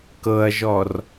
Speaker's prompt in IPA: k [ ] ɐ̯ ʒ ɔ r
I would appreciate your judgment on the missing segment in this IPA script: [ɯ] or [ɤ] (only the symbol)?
ɤ